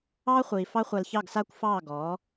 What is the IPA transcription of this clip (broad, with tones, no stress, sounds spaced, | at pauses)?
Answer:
ɑː˦ χʷ iː˨ f ɑ˦ χʷ a˧ l ç ɑ˦˨ ɡ s aː˦ kʷ f ɑː˦˨ ɡ ɔː˨˦